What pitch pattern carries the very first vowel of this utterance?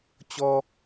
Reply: high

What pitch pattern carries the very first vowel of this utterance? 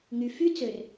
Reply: low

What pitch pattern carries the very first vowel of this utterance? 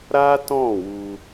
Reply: high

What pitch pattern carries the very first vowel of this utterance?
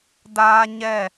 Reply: high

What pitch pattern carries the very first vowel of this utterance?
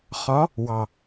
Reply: rising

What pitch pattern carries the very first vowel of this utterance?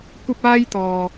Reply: high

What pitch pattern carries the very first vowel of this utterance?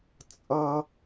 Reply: high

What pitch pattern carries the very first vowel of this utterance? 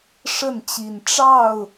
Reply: falling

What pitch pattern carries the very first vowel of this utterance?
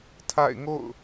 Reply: falling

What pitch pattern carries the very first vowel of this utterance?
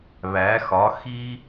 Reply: rising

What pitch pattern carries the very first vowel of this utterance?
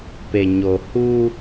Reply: low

